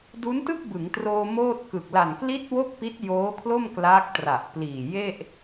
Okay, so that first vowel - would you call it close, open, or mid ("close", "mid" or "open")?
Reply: close